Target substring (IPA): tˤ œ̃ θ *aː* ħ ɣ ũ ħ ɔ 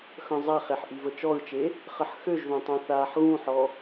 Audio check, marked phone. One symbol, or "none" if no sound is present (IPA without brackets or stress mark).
aː